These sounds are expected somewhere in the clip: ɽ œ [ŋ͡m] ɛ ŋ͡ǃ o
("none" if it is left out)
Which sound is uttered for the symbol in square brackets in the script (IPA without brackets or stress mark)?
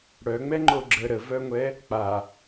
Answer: ŋ͡m